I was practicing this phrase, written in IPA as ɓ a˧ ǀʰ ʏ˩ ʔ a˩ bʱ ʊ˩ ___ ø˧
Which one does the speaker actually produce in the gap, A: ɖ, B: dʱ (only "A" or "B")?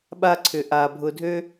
B